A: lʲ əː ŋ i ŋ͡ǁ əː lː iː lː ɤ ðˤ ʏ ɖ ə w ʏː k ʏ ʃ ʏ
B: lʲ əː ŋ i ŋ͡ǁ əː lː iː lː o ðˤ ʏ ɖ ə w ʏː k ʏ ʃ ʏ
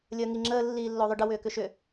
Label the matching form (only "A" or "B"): B